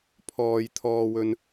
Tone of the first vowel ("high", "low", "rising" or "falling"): low